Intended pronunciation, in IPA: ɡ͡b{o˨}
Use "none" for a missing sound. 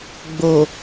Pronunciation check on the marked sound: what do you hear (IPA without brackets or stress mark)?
o˨